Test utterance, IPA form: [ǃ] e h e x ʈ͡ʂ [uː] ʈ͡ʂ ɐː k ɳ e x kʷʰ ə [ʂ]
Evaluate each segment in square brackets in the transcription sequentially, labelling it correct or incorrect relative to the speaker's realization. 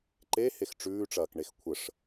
correct, incorrect: ʉː, correct

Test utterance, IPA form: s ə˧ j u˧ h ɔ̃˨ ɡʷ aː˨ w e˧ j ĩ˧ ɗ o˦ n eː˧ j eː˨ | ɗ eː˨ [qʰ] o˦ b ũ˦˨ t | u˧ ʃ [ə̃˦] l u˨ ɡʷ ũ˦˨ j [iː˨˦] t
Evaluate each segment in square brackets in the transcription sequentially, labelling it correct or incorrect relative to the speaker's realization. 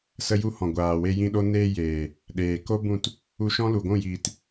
incorrect: k, incorrect: ɔ̃˦, incorrect: iː˨

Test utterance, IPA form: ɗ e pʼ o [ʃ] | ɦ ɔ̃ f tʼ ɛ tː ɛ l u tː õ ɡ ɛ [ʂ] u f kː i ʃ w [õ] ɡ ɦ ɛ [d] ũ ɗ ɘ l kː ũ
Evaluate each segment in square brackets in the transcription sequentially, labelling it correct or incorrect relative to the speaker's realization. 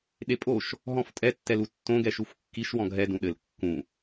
correct, incorrect: ʃ, incorrect: ɔ̃, correct

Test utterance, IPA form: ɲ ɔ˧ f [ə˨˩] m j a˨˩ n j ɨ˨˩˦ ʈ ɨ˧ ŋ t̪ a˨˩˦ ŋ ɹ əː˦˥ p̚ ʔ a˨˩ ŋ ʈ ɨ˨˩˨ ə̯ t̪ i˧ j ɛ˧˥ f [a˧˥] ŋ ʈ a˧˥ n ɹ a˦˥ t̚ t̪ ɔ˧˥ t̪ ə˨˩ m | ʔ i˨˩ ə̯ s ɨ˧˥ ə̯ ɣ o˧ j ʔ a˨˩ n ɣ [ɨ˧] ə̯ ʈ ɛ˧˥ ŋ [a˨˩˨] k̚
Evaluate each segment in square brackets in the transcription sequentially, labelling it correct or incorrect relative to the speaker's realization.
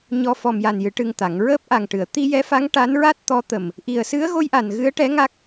incorrect: ɔ˨˩, correct, incorrect: ɨ˧˥, incorrect: a˦˥

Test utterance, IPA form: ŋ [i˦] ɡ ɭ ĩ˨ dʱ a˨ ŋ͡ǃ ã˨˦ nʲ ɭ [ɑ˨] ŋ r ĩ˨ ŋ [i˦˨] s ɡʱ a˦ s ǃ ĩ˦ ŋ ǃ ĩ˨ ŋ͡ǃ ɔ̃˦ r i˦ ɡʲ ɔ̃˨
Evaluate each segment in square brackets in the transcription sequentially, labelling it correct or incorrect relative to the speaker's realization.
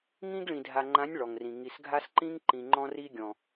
incorrect: ĩ˦, incorrect: ɔ˨, incorrect: i˨

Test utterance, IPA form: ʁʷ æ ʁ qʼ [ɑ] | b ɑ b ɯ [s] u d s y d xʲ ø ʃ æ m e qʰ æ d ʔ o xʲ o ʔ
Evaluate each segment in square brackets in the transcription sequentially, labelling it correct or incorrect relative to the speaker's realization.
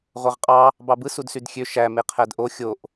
correct, correct

